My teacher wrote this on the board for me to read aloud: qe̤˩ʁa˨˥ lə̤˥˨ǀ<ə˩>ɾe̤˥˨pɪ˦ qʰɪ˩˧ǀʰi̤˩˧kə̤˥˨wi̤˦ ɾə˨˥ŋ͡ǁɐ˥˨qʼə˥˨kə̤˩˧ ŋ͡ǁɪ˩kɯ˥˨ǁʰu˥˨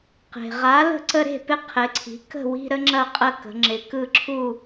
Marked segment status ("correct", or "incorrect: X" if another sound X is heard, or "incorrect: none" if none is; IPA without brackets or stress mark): incorrect: ə˦